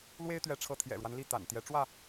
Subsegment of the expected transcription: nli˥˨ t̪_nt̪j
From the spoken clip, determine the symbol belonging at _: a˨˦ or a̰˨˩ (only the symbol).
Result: a̰˨˩